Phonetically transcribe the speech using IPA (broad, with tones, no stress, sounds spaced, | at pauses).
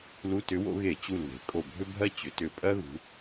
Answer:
l u˧˥˧ t ʏ˧˥ w o̰˧˥ ɣ e˧˩˧ t͡ɕ u˧˩ l ð e̤˩˧ kʼ o˧˩ bʱ ʏ˥ bʱ ɜ˥ t͡ɕ ʏ˩˧ t ʏ˧˩ pʼ ɜ˥ ɣ ṳ˩˧